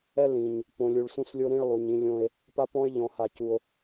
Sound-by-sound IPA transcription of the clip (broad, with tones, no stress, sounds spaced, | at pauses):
ɛ˦ l ĩ˨ ɲ | p õ˨ lʲ u˨ ɭ s ũ˦ s lʲ o˦ ɾ ĩ˦ ɭ lˠ u˨ ɲ ĩ˦ lʲ õ˦ e̯ | p a˦ p ɔ̃˦ e̯ ʎ ɔ̃˨ h a˦˨ c u˦ o̯